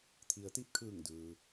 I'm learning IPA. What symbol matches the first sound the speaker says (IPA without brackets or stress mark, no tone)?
t̪ʰ